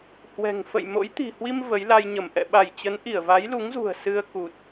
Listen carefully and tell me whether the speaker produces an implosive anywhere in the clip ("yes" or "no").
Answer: yes